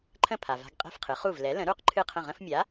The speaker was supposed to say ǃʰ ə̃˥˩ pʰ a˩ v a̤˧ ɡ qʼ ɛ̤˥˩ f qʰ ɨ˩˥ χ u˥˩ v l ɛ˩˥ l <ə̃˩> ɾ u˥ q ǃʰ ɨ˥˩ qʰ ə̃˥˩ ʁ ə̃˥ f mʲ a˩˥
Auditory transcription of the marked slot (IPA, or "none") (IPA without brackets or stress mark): ə̃˩˥